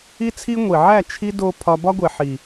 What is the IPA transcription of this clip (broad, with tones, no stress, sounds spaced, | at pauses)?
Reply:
i˦ t͡sʰ i˦ ŋʷ i˨ ʕ æ˦˨ t͡ʃʰ i˦ d o˦ pʰ ɒ˦ b ɒ˦ ɡʷ e˨ ħ i˨